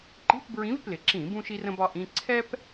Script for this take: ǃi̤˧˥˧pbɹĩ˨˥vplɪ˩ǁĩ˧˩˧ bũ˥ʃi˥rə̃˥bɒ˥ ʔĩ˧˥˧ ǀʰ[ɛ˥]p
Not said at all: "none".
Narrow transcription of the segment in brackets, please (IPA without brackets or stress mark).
ɛ˥